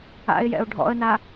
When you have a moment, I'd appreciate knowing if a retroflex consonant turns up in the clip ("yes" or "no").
yes